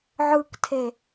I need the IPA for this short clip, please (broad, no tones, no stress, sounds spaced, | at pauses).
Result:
ʕ ɯ k tʰ e